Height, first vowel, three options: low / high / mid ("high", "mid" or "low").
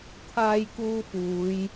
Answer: low